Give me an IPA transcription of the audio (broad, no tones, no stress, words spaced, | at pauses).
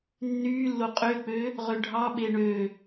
nːyːlːo qʼøk͡pø | ʁøɖʱɑ ɓeɳø